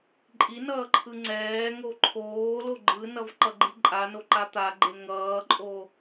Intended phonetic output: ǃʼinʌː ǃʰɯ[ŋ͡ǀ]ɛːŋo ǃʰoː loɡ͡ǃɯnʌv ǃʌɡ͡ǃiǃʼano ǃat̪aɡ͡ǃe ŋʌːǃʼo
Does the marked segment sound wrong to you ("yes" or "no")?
no